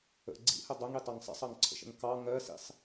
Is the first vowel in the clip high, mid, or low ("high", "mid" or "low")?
mid